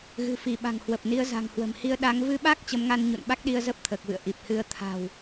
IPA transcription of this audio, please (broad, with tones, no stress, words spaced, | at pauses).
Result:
ɣɨ̤˨˩fi˧˩ɓa̤˨˩ŋ hwə˨˩p̚ni˨˦ə̯za̤˨˩ŋhwə̤˨˩m hi˧ə̯ ɗa˨˦ŋ vɨ˧ɓa˦˥k̚ t͡ɕə˨˦mŋa˧nɲṵ˧˨n ɓa˦˥k̚ɗi˧ə̯zə˦˥p̚ t̪ʰəː˨˩k̚vɨ̰˧˨ə̯ ʔi˨˩p̚hɨ˧ə̯ t̪ʰa̤˨˩w